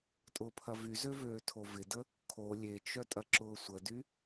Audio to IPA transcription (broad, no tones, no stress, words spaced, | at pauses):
tʼʊːpʰɐvyzø vøːtʰovɪdə | kʰo lʲet͡ʃœ tʼɐǁʊːsʷədy